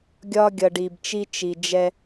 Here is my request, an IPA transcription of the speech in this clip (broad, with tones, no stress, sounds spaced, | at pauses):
ɡʲ ɒ˦ ɡʲ ʌ˨ ɖ i˨ b t͡ʃ i˦ t͡ʃ i˨ d͡ʒ ɛ˦